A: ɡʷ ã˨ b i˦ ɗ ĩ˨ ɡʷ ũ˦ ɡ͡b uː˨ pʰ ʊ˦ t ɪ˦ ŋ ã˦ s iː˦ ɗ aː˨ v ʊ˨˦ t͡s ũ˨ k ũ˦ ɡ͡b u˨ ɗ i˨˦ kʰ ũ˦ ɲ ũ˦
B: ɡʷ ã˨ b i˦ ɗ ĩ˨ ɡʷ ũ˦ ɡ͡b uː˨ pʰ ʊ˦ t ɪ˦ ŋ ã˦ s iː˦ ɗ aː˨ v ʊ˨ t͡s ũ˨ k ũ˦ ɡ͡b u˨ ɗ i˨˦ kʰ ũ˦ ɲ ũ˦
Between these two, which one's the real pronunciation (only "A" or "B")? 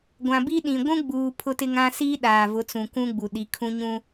A